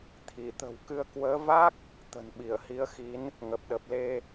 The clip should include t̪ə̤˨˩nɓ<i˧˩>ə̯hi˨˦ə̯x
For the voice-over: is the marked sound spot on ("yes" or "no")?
yes